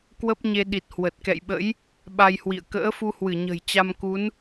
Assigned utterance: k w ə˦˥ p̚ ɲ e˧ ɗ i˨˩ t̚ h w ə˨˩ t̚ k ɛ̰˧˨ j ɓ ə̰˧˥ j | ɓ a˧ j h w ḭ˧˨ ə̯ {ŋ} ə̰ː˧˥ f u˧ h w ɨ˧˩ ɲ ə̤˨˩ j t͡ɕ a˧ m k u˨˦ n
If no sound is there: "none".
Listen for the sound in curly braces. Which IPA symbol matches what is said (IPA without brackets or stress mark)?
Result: k